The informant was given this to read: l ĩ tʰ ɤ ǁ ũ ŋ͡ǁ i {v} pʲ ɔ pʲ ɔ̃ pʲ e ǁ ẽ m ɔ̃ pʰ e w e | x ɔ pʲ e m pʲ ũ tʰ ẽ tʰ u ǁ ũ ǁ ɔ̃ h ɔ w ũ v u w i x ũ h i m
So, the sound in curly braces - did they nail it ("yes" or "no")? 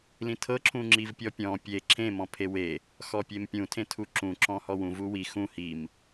yes